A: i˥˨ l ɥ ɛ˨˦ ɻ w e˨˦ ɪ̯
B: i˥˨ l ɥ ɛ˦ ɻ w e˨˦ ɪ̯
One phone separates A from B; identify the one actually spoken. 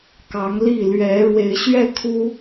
A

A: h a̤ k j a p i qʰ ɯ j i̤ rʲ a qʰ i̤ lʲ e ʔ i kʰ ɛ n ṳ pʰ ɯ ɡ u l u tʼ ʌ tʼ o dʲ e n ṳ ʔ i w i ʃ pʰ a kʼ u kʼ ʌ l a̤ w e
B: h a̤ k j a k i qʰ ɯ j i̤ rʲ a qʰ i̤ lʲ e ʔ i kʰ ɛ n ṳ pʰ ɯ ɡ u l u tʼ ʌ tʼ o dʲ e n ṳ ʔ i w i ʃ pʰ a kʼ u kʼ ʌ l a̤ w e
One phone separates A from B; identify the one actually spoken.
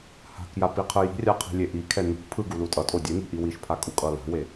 A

